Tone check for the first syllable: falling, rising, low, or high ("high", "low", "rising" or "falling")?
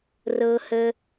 high